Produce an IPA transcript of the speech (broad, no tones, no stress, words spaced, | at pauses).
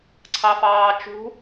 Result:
ǀʰɑfɑːt͡ʃṳ